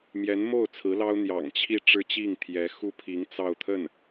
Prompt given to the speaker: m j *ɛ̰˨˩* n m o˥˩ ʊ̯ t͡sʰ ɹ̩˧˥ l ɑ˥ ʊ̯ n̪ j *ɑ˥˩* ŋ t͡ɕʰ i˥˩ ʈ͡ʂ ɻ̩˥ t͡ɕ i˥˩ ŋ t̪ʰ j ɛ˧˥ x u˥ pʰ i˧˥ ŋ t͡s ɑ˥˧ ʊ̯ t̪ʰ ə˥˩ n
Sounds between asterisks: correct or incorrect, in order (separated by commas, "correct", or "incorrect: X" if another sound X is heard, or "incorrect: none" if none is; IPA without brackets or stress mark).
incorrect: ɛ˧˥, incorrect: ɑ̰˨˩